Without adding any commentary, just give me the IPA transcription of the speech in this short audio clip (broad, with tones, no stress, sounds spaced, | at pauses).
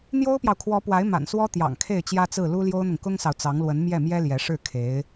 n̪ j o˥ ʊ̯ p j ɑ˨ ʊ̯ kʰ w ɔ˧˥ p w a˧˥ ɪ̯ m a̰˨˩ n s w ɔ˥ t̪ j ɑ̰˨˩ ŋ kʰ e˥˩ ɪ̯ t͡ɕ j ä˥ t͡s ɹ̩˥˩ l u˥ l j o˥ ʊ̯ n̪ ʊ˨ ŋ k ʊ˥ ŋ s ɑ˨ ʊ̯ t͡s ɑ˧˥ ŋ l w ə˧˥ n m j ɛ˥˩ m j ɛ˥ l j ɛ˧˥ ʂ ɻ̩˥˩ kʰ e˧˥ ɪ̯